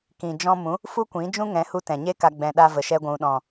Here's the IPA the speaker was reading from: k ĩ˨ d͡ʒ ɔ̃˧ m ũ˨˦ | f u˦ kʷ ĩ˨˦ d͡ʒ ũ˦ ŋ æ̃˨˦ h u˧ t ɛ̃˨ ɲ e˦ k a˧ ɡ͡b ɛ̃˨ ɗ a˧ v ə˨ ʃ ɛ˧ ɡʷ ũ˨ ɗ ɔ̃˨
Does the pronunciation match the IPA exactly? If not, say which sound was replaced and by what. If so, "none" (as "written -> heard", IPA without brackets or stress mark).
æ̃˨˦ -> ɛ̃˨˦